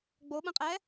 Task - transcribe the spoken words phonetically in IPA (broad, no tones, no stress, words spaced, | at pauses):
ɡ͡boɓə̃qʼɛ